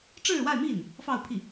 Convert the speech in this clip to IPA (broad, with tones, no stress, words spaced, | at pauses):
ʈ͡ʂɻ̩˥˧wa˥˧ɪ̯mi˥˩n | fɑ˥˧ʊ̯pʰi˥˩